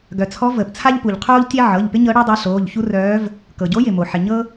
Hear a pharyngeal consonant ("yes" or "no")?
yes